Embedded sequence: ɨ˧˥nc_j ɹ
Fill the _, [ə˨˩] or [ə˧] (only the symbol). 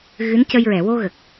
ə˧